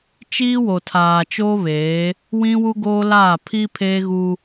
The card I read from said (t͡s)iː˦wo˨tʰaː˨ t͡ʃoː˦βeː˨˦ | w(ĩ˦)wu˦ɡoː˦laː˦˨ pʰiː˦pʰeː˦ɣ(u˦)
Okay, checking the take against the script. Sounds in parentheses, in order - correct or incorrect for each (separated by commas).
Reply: incorrect, correct, correct